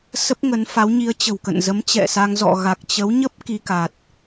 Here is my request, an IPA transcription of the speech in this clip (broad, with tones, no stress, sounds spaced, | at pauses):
s ə˦˥ p̚ ŋ ə˨˦ n f a˨˦ w ɲ i˨˦ ə̯ t͡ɕ ə̤˨˩ w k ə̰˧˨ n z ə˨˦ m t͡ɕ ɛ̰˧˨ s a˧ ŋ z ɔ̰˧˨ ɣ a˨˩ k̚ t͡ɕ ə˨˦ w ɲ ə˦˥ p̚ k i˧ k a˨˩ t̚